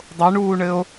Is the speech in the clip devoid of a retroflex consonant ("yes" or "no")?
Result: no